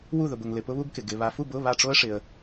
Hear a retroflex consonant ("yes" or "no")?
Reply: yes